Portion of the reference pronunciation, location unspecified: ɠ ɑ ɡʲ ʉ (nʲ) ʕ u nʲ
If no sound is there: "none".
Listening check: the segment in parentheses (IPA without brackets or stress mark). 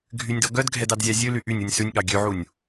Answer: none